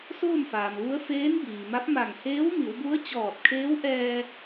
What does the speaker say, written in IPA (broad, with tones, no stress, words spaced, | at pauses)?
soː˥˨mfaː˩mʋu˧˥ə̯ feː˧˥nbiː˩ma˧˥p̚ma˧˩ŋ heː˧˥wmi˩˧wbu˧˥ə̯ t͡ɕɔː˧˩t̚kʰeː˧˥w ʔɛː˧